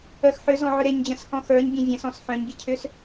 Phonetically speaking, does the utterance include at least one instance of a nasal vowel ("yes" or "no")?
yes